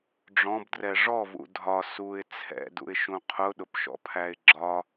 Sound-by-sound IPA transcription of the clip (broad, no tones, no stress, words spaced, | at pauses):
ɖ͡ʐɔ̃bdrɛ ʐɔvṵ dʱɒ suɪ̯ t͡sʰɛ̰dṵɪ̯ʃũ qʰʊɗʊpʃɔ̰pʰæɪ̯ ɡ͡ǁɒ